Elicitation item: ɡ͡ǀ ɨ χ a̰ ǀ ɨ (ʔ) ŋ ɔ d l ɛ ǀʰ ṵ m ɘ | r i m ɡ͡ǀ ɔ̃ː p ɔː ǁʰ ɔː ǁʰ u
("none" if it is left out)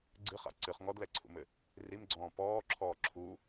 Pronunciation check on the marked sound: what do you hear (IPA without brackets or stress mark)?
χ